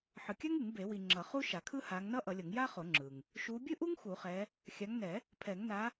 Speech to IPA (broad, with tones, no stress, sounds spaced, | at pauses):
ħ ɯ˨ kʲ a˥ ŋ ɯ˨˩˦ ŋ b e˨˩˦ w i˨ ŋ͡ǁ ʌ˨˩˦ χ u˥ ʃ a˨˩˦ kʰ ɯ˥ h a˨˦ ŋ n ʌ˥ ʔ ʌ˨˩˦ lʲ ʌ˨˩˦ ŋ j a˥ χ o˨˩˦ ŋ͡ǁ ɯ˨ ŋ | ʃ u˨˦ bʲ ɯ˥ ʔ u˥ ŋ x u˨˩˦ χ ɛ˨˦ | xʲ a˨˦ ŋ n ɛ˨˩˦ | pʰ ɛ˨˩˦ ŋ n a˨˦